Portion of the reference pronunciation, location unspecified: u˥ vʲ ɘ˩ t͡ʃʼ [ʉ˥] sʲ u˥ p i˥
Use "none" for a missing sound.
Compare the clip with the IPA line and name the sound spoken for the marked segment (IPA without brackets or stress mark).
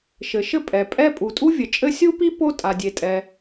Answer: ɘ˥